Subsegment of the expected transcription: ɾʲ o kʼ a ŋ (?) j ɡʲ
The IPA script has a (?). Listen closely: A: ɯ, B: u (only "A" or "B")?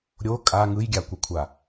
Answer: A